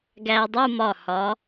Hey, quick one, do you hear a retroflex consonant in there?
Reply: no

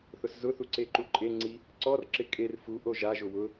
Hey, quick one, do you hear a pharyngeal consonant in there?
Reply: no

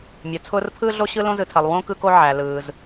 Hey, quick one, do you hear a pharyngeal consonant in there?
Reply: yes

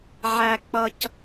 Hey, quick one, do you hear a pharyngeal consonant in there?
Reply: yes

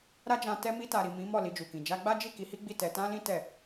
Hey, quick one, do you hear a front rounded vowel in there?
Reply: no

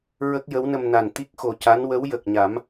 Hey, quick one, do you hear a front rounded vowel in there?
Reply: no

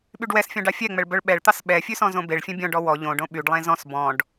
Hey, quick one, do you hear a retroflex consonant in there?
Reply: yes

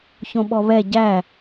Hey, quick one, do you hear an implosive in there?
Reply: yes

